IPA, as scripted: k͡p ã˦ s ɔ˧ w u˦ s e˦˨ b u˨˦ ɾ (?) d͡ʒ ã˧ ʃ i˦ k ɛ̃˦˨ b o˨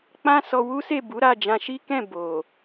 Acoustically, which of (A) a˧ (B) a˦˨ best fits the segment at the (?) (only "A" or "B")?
B